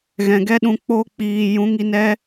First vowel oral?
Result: no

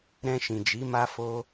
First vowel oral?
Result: no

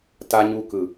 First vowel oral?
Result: yes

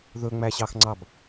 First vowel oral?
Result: yes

